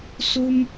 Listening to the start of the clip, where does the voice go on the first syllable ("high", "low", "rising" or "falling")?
high